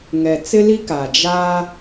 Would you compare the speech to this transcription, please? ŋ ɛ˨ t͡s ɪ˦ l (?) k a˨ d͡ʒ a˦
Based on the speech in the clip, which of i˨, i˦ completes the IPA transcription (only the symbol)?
i˦